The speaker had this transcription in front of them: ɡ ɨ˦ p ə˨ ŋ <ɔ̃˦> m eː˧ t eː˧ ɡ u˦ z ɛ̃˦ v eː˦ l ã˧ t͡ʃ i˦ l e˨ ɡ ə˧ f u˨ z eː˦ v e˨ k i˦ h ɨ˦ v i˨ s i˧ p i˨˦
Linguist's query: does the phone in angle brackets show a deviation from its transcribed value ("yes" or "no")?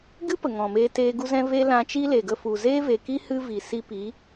yes